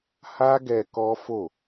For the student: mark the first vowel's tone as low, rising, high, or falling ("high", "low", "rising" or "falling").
high